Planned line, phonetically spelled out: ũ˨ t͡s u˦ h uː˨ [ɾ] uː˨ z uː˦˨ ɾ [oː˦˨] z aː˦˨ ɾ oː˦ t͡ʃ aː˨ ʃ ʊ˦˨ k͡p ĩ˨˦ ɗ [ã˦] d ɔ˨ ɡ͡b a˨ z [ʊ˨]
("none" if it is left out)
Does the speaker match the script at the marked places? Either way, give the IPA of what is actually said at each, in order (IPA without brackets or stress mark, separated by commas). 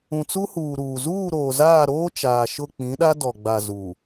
ɾ, oː˨, a˦, u˨